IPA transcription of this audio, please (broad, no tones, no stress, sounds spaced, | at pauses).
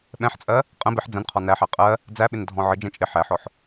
ɓ ɛ̃ ħ t͡sʼ ɜ | qʼ ə̃ b ɪ ħ d͡z ə̃ n qʰ ɔ n æ ħ æ qʼ ɜ | d͡z æ ɓ ɪ n dʱ ɔ̃ ʕ ə d͡ʒ ɛ̃ t͡ʃʼ ɪ ħ æ ħ ɔ ħ